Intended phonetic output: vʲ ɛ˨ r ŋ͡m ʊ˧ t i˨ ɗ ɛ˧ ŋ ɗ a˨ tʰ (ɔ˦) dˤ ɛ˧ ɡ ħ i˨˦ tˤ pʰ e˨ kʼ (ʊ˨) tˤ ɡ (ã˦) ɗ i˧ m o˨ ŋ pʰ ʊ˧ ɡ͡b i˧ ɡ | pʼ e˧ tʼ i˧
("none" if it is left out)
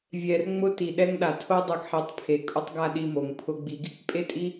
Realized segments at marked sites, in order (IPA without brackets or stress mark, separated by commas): o˦, ʊ˦, a˦